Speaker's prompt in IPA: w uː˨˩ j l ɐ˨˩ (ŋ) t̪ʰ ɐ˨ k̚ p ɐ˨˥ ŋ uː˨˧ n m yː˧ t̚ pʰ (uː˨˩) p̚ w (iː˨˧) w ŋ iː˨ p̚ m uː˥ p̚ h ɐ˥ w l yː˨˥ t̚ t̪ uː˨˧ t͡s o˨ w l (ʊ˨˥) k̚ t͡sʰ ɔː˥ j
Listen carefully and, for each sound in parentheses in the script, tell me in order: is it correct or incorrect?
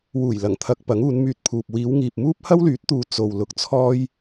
correct, incorrect, correct, incorrect

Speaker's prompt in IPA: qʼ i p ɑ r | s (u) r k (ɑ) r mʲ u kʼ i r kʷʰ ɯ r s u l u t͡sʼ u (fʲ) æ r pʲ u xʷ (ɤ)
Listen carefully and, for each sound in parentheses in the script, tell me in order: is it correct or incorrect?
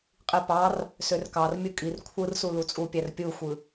incorrect, correct, incorrect, incorrect

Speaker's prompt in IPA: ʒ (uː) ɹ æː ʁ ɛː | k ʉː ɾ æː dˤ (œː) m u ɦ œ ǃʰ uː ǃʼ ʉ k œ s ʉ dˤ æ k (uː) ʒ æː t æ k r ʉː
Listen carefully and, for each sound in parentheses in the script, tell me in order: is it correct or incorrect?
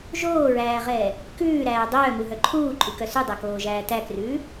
incorrect, correct, incorrect

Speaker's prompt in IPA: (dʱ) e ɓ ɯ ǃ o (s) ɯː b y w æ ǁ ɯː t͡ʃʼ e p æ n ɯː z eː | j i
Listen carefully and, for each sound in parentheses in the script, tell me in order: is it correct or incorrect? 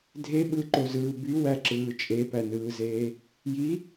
correct, incorrect

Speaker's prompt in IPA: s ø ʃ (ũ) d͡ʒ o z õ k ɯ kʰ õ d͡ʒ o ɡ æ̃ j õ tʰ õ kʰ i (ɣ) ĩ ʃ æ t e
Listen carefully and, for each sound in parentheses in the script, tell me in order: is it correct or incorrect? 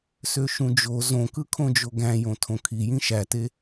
correct, incorrect

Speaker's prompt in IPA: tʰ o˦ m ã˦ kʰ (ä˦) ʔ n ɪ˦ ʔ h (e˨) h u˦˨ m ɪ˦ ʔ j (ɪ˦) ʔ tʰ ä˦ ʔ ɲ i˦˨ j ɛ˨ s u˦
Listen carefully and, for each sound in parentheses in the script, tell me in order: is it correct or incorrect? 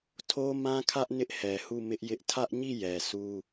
correct, incorrect, correct

